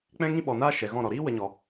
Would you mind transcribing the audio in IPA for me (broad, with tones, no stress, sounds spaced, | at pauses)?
k͡p ɛ̃˦ ŋ ĩ˦ ɓ ɔ˨ n aː˦ ʃ ɛ˨ ɣ ɔ̃˦˨ ɾ ɔ˨ ɾ iː˦ w ə˧ ɲ ɔ˨